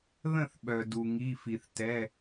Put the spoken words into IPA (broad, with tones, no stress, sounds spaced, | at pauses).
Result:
ð ə̃˥˩ θ ɓ œ˩ d u˩ ŋ i˩˧˩ f i˩ θ t ɛ˩˧˩